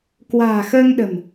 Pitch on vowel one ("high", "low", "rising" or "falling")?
low